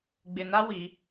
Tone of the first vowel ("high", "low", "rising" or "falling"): low